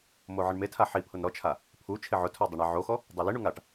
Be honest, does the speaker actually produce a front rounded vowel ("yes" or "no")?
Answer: no